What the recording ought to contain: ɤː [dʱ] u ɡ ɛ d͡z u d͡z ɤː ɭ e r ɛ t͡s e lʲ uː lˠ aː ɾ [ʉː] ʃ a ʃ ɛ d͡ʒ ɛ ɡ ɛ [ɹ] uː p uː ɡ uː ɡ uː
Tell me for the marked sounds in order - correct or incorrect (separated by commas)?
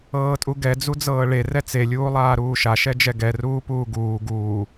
incorrect, incorrect, incorrect